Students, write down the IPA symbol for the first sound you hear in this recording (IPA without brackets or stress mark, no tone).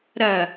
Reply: ɾ